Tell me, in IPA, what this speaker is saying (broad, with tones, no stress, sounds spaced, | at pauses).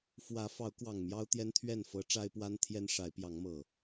f w ä˨˦ f ɑ˨˦ ʊ̯ k w ɑ˨˩ ŋ m j ɑ˦ ʊ̯ t̪ j ɛ˦ n t̪ʰ ɥ ɛ˥˨ n f ɤ˨˦ ʈ͡ʂ a˦ ɪ̯ p w a˦ n t̪ʰ j ɛ˦ n ʂ a˨˦ ɪ̯ p j ɑ˨˦ ŋ m ɤ˨˩